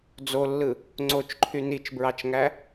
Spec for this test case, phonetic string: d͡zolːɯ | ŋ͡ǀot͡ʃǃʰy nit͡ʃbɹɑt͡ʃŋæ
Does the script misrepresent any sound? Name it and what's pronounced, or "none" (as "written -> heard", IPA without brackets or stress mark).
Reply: none